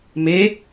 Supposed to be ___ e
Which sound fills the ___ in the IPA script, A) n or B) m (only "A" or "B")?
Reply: B